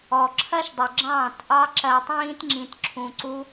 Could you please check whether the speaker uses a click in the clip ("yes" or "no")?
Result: yes